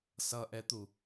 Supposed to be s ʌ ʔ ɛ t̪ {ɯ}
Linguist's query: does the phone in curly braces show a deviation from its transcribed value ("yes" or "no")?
yes